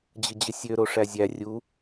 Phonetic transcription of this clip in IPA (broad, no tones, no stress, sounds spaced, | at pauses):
d͡ʑ ɯ d͡ʑ ɯ sʲ ø ɾ o ʂ æ zʲ æ rʲ u